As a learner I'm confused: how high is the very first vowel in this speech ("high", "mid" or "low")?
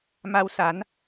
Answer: low